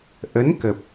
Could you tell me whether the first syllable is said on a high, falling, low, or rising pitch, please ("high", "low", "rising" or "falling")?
rising